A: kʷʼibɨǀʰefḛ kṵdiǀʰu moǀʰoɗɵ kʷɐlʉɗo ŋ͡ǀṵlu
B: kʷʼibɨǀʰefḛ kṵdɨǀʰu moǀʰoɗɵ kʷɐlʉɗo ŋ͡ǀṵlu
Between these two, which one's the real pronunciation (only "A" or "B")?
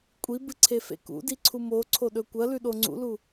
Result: A